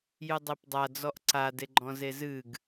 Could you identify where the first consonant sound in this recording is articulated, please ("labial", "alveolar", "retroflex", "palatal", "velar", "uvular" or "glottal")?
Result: palatal